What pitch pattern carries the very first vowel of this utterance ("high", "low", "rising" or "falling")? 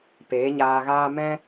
rising